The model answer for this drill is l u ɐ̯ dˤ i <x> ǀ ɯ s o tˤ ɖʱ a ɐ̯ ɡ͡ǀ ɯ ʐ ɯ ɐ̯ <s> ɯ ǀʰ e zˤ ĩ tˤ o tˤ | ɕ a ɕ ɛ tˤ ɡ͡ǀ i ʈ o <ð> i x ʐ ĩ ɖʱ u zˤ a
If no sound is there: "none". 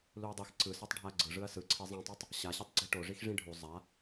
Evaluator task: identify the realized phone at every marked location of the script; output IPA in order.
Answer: x, s, ʐ

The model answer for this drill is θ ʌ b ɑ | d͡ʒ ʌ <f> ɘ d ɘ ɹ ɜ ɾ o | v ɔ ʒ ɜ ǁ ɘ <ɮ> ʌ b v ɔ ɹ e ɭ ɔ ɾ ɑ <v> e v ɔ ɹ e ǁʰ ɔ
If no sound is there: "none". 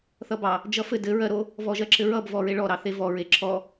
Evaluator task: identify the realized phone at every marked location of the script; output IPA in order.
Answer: f, ɹ, θ

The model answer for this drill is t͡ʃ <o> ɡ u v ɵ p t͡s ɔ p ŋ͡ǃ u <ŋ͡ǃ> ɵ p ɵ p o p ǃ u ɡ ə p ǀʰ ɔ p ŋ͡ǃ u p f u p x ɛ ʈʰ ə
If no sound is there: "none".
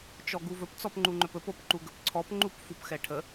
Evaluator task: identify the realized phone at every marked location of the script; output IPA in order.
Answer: ɔ, ŋ͡ǃ

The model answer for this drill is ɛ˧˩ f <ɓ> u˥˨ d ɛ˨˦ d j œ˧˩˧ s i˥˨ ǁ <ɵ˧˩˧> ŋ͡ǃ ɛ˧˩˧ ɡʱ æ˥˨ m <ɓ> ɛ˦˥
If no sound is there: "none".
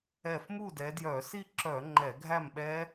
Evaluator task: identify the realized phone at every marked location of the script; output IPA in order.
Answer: m, œ˧˩˧, ɓ

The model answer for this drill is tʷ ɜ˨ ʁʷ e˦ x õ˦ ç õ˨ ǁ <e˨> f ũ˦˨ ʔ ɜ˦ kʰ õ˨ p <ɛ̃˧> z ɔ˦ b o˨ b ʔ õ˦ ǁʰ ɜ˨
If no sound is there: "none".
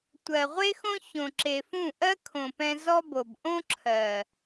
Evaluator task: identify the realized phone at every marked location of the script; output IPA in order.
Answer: e˨, ɛ̃˧

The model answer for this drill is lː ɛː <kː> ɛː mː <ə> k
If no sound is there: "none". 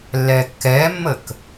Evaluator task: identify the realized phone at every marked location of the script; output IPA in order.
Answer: kː, ə

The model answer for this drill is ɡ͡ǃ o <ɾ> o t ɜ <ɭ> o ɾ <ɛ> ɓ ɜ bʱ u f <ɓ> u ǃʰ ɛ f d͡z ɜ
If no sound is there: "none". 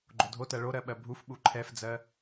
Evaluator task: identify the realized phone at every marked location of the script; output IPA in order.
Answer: dʱ, ɭ, ɜ, ɓ

